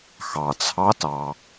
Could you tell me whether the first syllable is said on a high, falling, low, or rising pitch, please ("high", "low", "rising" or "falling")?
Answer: low